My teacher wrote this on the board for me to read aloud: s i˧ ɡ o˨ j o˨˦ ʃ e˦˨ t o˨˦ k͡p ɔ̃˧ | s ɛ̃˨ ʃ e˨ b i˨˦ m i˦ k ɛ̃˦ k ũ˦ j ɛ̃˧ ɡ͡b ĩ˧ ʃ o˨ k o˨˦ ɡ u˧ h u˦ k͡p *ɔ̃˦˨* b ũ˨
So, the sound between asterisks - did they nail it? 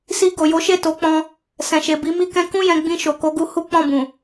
yes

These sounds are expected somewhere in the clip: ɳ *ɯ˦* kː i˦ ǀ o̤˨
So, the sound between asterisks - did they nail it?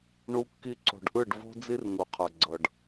no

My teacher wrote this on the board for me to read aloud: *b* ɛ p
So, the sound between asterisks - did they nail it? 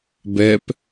yes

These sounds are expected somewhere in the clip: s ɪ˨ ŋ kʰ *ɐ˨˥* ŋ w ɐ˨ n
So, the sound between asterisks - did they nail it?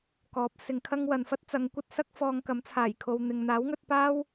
no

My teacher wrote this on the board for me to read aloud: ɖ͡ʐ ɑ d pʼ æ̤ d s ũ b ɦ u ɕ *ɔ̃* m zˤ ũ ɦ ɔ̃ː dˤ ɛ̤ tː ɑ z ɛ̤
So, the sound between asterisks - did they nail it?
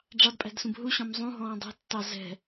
yes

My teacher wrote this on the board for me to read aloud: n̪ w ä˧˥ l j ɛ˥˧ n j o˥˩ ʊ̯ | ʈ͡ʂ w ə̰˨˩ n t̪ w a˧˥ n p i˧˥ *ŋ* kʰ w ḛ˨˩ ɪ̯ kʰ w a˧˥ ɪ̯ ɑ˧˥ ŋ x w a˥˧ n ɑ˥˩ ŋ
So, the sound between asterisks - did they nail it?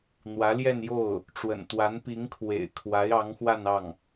yes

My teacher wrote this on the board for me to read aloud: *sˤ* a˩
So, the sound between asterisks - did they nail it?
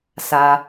no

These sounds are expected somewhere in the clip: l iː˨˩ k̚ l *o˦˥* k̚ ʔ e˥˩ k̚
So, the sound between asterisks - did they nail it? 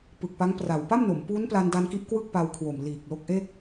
yes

